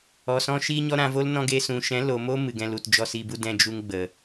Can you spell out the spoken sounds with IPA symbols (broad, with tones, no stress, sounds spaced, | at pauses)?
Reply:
ɔ˨ s ɔ̃˧ ʃ iː˧ ɲ ɔ˧ ɾ ã˧ v o˦ l n ɔ̃˧ ɡ e˧ s ũ˨ ʃ ɛ̃˨˦ l o˨ m o˦ m ɨ˨ ɡ ɛ̃˧ l u˨ t d͡ʒ ɔ˧ s i˧ b u˦ d ɛ̃˦ d͡ʒ u˦ ŋ ɡ͡b ə˨